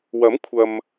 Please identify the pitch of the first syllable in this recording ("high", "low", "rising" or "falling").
rising